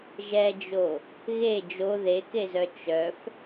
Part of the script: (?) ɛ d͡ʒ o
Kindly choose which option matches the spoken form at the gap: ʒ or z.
ʒ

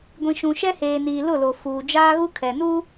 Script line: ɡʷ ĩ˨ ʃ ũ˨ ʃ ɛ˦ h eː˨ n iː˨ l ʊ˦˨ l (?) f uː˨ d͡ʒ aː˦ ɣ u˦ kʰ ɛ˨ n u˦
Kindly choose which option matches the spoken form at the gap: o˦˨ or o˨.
o˨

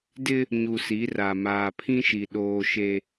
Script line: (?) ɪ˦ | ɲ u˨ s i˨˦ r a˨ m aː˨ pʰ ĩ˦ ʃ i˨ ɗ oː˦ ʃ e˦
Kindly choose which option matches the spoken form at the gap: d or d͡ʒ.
d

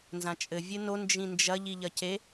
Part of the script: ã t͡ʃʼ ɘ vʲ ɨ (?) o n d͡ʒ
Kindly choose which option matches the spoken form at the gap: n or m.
n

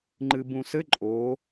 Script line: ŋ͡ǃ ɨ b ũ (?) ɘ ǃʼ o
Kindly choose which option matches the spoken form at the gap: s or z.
s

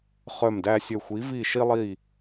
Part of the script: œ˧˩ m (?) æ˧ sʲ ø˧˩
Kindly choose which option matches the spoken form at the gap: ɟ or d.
d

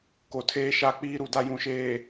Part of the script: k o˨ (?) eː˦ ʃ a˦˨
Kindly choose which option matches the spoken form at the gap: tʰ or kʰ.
tʰ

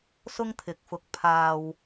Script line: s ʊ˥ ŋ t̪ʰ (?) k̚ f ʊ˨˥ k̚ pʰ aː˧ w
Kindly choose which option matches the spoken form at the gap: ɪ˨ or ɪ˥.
ɪ˨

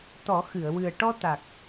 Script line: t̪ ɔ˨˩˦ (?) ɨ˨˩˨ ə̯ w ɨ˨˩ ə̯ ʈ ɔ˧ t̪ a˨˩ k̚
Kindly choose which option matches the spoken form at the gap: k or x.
x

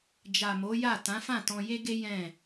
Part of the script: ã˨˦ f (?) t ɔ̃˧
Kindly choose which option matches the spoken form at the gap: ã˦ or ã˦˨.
ã˦˨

